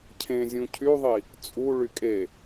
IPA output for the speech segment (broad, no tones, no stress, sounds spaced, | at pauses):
cʰ ẽ zʲ ũ cʰ y ðˤ i | t͡sʼ u ɭ y kʼ e